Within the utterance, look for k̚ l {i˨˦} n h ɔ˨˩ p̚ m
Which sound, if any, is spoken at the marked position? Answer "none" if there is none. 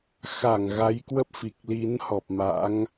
i˨˦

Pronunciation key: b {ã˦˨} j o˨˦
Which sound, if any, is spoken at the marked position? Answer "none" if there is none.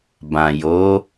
ã˨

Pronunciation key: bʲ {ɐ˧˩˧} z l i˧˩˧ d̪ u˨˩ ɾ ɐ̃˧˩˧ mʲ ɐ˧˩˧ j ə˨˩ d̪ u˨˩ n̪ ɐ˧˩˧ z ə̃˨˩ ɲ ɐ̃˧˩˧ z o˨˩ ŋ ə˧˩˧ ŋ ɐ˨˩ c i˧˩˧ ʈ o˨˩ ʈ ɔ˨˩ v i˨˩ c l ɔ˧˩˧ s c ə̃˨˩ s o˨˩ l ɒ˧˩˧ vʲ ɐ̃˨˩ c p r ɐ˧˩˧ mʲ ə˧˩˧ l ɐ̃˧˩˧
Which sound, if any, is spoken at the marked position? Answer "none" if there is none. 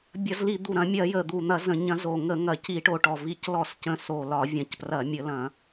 ɐ˧˩˧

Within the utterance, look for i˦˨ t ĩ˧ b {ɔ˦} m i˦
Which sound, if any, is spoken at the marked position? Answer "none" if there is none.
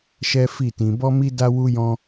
ɔ˦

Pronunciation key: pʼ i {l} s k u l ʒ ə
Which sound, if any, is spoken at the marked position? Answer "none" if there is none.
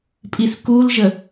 none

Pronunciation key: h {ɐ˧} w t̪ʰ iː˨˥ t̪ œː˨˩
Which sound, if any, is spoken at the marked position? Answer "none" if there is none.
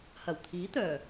ɐ˨˩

